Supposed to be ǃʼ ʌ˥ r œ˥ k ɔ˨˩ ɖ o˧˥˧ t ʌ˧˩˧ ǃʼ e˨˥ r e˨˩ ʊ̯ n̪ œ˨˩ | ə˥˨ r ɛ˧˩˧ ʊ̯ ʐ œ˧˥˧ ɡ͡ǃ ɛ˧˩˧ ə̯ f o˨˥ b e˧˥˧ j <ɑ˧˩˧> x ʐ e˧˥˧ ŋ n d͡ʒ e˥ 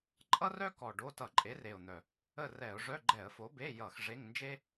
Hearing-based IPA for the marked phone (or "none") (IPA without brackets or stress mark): ʌ˧˩˧